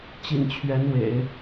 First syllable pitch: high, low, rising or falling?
low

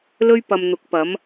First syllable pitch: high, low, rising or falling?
high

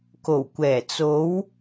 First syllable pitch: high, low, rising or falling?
low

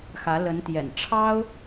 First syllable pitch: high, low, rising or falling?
rising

